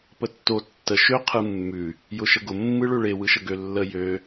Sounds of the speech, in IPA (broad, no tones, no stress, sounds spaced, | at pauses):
p ə tː o tː ə ʃ ø qʰ ɯ mː ʉ | j ʊ ʃ ə ɡ ʊ mː ɯ ɭ ø ɭ e w ɯ ʃ ə ɡ ø lː ə j ø